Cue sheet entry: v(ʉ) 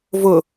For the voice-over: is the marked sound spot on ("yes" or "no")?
no